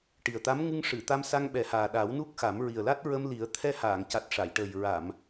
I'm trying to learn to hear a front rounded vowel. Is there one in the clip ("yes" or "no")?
no